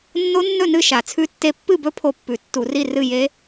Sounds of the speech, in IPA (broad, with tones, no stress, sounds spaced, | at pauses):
nː o˦˥ nː ɵ˥˨ n ɨ˥˨ ʃ a˧˩˧ t͡sʰ ʉ˦˥ tː e˦˥ pː ɨ˥˨ b ɵ˦˥ pʰ o˥˨ pː ʉ˧˩˧ tː u˧˩˧ r i˥˨ r ɨ˥˨ j e˦˥